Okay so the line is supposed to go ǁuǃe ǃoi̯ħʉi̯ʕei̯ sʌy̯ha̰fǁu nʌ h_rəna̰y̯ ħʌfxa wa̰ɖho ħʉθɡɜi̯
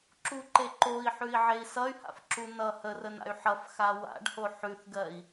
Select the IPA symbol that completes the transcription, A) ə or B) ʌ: A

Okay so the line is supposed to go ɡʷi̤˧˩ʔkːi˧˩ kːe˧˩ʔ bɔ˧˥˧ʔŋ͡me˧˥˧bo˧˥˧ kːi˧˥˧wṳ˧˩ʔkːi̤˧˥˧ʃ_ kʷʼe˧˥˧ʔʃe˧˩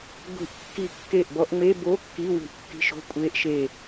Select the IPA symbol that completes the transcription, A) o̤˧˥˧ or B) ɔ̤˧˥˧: A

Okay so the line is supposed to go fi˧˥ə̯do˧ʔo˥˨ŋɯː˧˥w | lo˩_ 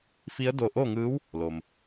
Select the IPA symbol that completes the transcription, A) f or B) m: B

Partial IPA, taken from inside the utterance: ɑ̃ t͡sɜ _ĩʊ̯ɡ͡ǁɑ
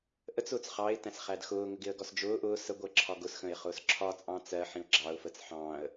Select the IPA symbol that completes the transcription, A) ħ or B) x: A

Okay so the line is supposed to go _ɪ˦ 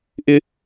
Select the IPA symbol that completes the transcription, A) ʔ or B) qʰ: A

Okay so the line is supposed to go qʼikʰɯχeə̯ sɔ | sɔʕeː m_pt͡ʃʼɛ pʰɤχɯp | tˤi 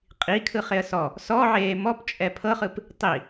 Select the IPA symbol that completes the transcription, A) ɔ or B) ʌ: A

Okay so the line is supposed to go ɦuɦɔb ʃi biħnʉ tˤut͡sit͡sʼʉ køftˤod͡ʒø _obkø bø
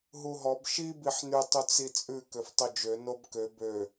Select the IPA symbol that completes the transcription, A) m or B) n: B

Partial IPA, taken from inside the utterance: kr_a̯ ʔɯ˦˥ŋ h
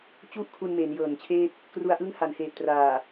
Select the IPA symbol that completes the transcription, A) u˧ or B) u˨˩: A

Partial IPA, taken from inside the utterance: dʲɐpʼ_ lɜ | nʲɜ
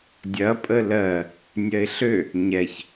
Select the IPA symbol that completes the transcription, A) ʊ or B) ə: B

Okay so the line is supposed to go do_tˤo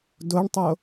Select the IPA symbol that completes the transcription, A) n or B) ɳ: B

